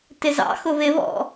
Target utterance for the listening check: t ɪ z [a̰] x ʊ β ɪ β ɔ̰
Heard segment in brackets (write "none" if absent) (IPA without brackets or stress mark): ɑ̰